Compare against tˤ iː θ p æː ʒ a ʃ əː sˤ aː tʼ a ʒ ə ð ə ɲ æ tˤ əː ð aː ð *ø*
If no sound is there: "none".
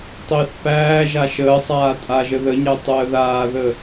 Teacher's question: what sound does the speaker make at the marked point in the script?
ə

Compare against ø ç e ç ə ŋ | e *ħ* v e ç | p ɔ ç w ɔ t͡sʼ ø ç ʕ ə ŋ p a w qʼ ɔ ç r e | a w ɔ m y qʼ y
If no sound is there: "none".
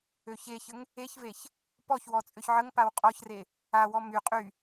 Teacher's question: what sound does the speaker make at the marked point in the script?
ç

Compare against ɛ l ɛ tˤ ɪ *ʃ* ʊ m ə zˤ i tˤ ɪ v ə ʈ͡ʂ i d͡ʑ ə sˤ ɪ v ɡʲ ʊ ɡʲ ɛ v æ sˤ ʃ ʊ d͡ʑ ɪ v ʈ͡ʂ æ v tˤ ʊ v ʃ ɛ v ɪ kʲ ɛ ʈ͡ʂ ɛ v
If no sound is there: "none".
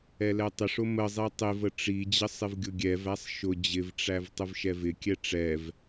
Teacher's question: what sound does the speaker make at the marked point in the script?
ʂ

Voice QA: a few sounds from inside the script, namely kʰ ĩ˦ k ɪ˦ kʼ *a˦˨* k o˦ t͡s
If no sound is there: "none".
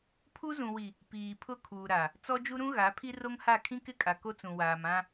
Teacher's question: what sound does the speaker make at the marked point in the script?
a˨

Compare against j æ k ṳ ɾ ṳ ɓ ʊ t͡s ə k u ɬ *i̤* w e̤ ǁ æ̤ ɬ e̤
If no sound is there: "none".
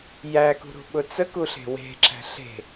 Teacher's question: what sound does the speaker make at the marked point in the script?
e̤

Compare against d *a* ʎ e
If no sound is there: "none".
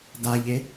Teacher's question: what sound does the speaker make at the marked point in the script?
a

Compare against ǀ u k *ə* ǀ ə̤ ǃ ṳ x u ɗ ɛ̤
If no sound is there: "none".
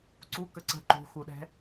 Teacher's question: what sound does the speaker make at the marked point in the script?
ə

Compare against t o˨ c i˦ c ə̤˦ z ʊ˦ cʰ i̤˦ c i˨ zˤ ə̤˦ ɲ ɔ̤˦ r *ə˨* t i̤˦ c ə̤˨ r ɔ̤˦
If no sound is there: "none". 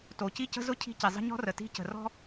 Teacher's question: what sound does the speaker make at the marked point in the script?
ə˨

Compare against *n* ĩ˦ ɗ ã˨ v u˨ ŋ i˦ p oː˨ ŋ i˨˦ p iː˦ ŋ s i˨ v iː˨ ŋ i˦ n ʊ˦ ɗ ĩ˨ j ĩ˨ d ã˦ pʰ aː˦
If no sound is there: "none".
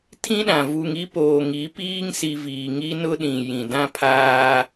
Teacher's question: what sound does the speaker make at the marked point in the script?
tʰ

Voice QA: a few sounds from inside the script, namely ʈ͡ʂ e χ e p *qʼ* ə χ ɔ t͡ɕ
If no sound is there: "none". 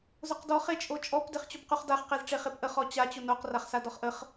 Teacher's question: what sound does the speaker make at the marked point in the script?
ʔ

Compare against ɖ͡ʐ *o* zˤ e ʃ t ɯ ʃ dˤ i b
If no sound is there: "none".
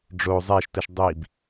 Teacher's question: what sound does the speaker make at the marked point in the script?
o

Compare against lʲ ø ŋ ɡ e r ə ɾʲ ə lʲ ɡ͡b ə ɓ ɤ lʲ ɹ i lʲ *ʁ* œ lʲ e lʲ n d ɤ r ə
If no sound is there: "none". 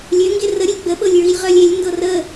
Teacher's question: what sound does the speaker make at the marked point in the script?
ʁ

